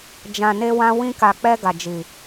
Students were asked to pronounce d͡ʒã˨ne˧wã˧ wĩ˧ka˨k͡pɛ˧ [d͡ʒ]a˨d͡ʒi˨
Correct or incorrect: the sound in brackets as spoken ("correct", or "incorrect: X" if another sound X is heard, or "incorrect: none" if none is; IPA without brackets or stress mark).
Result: incorrect: ɡ